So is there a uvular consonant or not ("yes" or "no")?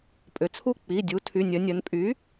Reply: no